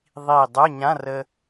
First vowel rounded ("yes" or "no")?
no